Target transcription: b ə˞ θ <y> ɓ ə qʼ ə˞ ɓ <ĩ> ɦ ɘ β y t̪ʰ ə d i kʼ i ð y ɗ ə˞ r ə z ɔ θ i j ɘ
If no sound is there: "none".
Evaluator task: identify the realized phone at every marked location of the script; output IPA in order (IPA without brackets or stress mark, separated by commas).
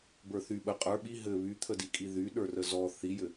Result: y, i